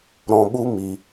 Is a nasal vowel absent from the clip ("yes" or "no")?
no